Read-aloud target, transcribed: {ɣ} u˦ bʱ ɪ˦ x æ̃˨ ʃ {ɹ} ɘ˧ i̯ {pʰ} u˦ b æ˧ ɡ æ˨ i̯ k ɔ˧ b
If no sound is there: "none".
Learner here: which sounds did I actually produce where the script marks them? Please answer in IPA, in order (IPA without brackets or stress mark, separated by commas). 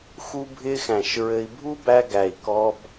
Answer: x, ɹ, bʱ